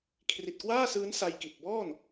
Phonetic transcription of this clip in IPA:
kʰ r i˨˩ t̚ k w aː˥˩ s ɯː˦˥ n s a˧ j k i˨˩ t̚ b ɔː˥˩ n

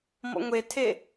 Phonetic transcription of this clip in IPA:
m ɔ̰ ŋʷ e tʰ e

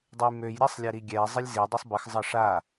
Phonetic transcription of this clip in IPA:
dˤ ə j m ø j ɾʲ a sˤ lʲ ɛ ɾ i ɡʲ ɛ zˤ ə lʲ z i dˤ u sˤ b ə x zˤ ʌ ʂ a

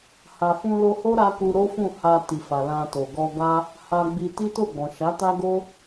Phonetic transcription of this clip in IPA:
h a˨ f ũ˧ l o˧ h o˦ ɾ a˦ k u˧ ɾ o˦ f ũ˦˨ h a˧ t i˨ f a˨ l ã˧ t o˨ ɡ ɔ˧ ɡ a˦ | h a˧ ɡ͡b i˧ t i˦ t o˦˨ ɡ͡b ɔ̃˨ ʃ a˨˦ t a˦ ɡ o˦

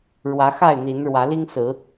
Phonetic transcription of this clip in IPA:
ɻ w ä˨˦ x a˥˨ ɪ̯ n̪ i˨˦ n ɻ w ä˨˦ l i˦ ŋ s ɹ̩˨˦

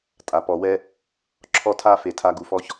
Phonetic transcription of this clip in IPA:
tʼ a˨ p ɔ˨ w ɛ˧ | ǁʰ ɔ˧ tʰ a˧ f e˨ tʰ a˧ ɡ u˨ f ɔ˧ ç

